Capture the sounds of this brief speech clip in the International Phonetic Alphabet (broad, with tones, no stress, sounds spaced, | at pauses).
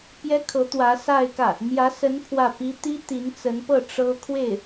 p j ɛ˥ kʰ ɤ˧˥ t̪ w ä˧˥ s a˥˧ ɪ̯ k ä˥˩ | m j ä˧˥ s ə˧˥ n pʰ w ä˥˩ p i˥ t̪ i˥ t̪ i˧˥ n t͡s ə˧˥ n p ɤ˥˩ ʈ͡ʂ ɤ˥ kʰ w e˥˩ ɪ̯